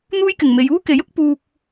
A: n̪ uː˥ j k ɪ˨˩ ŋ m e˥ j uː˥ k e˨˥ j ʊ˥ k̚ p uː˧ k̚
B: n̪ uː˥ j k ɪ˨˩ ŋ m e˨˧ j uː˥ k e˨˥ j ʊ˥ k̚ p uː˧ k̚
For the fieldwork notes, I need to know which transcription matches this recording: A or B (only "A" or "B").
B